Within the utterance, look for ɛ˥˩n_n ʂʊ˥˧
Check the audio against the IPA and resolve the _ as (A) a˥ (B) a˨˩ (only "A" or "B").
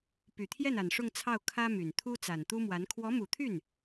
B